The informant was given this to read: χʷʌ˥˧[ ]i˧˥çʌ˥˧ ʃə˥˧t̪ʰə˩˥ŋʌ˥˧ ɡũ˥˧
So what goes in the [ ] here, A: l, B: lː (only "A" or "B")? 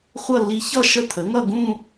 B